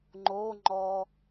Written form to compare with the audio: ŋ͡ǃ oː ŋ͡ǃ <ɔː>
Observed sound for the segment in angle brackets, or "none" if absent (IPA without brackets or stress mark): ɔː